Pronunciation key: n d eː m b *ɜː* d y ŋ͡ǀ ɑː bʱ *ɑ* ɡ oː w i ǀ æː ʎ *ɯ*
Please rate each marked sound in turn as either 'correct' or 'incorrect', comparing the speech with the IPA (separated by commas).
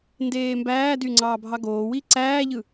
incorrect, correct, correct